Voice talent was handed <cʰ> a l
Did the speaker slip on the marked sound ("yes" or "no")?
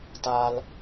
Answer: yes